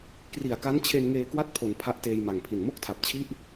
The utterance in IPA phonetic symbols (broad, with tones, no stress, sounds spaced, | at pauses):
k r i˨˩ a̯ k a˦˥ n t͡ɕʰ e˧ n ŋ eː˧ k w a˥˩ t̚ pʰ o˩˦ n pʰ a˦˥ ʔ t eː˧ j m a˨˩ ŋ pʰ i˨˩ n m o˥˩ k̚ tʰ a˨˩ p̚ t͡ɕʰ i˥˩ ʔ